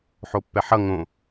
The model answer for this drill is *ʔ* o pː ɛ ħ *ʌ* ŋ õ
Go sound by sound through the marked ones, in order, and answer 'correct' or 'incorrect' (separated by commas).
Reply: incorrect, correct